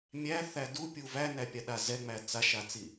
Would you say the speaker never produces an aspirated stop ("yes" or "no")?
yes